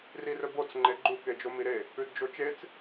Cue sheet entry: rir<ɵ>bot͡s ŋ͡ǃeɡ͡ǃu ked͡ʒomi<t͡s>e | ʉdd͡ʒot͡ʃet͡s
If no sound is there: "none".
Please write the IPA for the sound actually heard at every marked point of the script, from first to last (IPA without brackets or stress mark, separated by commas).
ɵ, ɾ